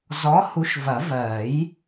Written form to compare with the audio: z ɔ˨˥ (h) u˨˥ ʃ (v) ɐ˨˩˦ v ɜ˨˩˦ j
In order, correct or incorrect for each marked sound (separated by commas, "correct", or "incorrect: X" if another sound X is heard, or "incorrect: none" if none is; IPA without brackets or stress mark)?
correct, correct